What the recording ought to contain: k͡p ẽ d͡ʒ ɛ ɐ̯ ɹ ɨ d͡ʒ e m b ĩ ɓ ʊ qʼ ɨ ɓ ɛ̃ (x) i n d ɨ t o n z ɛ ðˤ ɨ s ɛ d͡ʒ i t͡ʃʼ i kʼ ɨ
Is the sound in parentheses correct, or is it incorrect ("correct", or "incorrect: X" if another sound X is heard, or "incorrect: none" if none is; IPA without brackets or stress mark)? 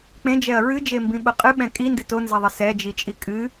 incorrect: kʼ